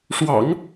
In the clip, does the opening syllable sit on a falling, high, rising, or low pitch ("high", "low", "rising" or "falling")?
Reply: low